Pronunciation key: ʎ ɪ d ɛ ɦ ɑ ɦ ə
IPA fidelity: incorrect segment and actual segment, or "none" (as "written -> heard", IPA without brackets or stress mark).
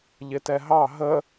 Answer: d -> t